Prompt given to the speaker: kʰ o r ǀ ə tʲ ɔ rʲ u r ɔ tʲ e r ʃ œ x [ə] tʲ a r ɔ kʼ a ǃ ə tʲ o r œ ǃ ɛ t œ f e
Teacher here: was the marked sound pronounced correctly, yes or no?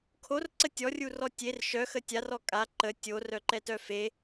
yes